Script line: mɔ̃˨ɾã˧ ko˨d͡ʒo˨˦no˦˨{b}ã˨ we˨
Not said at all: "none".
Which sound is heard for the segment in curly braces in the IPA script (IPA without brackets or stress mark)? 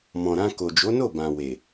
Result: b